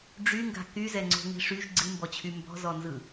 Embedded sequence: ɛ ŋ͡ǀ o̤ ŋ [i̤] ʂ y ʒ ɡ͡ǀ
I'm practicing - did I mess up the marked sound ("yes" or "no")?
no